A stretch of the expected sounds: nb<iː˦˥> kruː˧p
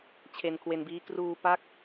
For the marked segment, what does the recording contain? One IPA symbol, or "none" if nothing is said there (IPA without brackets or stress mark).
iː˦˥